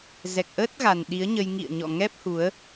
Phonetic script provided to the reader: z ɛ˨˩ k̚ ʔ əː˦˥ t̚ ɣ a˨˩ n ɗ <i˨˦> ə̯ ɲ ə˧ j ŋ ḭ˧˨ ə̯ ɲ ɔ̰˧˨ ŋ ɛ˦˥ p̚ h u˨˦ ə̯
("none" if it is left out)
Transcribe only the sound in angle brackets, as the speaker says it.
i˨˦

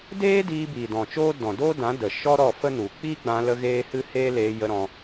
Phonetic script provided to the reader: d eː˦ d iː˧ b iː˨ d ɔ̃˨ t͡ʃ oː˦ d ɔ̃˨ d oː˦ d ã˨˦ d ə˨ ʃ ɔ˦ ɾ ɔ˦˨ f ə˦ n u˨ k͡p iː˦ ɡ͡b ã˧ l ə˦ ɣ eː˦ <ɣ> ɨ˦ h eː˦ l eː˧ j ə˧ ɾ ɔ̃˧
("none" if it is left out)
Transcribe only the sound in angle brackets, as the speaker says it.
h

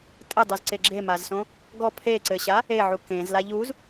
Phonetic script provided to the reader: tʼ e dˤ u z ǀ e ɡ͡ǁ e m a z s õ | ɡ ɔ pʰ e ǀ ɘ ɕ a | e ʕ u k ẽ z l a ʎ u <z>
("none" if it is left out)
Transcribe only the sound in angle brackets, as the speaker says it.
z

